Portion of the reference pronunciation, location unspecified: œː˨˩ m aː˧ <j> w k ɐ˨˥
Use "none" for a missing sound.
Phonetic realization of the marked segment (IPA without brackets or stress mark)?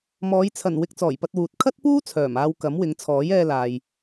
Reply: none